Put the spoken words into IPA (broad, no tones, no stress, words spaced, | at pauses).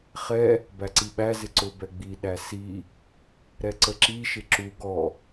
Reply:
χɛ | bæǀiɓæ zɪǀʊ bɛɡ͡bi ɗæsi | ɾɛǀəǁi ʃɪǁu ɡɔ